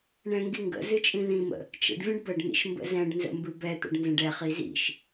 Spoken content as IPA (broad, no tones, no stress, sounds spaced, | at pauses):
ɳ ɛ̃ ŋ ɡ i ŋ ɡ ə̰ z ɨ t͡ʃʼ ĩ ð ĩ m ə̰ | t͡ʃ ə̰ ɖ vʲ ə̃ ɖ b ə ɖ n̪ ḭ ʃ m b ə̰ z ɛ̃ ɖ n z ə̰ m b ɨ b ɛ t̪ ə̰ ɖ n z ə̃ ɖ ɛ χ i z ḭ ʃ